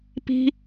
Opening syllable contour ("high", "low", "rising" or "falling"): high